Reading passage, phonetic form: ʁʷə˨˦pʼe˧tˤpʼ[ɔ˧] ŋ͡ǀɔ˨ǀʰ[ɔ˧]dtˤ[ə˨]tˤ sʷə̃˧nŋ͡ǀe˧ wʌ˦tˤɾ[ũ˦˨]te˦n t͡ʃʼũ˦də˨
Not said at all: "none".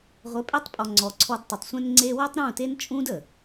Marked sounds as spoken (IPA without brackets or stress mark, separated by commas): ɔ˨, ɔ˧, ə˨, ũ˦˨